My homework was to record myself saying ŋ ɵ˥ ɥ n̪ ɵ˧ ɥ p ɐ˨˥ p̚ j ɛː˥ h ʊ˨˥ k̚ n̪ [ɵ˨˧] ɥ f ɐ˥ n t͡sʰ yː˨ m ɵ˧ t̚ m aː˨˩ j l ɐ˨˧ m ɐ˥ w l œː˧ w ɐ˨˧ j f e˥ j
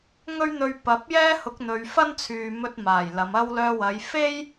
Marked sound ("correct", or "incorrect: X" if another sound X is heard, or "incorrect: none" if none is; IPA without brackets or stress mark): correct